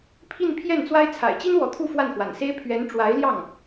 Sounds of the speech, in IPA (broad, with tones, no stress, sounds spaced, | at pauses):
pʰ i˥˧ n pʰ j ɛ˥˩ n t͡s w a˥ ɪ̯ t͡sʰ a̰˨˩ ɪ̯ t͡ɕ i˥ n w ɔ˧˥ t̪ʰ u˥˧ f w a˥˩ n x w a̰˨˩ n s e˥ ɪ̯ pʰ ɥ ɛ˧˥ n ʈ͡ʂ w a˧˥ ɪ̯ l j ɑ˥˩ ŋ